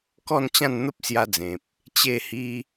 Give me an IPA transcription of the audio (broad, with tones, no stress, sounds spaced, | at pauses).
k ɔ˥˧ n t͡ɕ ã˥˧ n n̪ ə˦ p̚ s j a˧ d͡z ẽ˨ p̚ | t͡ɕ e˥˧ h i˦